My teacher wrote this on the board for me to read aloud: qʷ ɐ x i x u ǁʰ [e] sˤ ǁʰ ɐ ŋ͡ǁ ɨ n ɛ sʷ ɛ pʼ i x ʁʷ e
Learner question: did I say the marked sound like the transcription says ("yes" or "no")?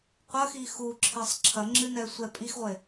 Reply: yes